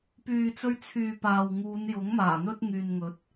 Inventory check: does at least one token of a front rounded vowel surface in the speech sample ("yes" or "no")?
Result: yes